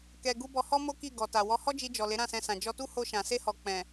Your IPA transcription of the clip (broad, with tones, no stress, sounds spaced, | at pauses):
k ɛ˧ ɡ u˦ b ɔ˧ h ɔ˦ m o˦ k i˦˨ ɡ ɔ˨ t a˨ w ɔ˨˦ h ɔ˦ d͡ʒ i˧ d͡ʒ ɔ˨ l e˨˦ ɾ ã˦˨ s ɛ̃˧ s ã˨ d͡ʒ ɔ˧ t u˦ h o˧ ʃ ã˨ s e˧ h ɔ˨ k͡p ɛ̃˨